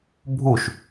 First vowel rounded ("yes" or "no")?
yes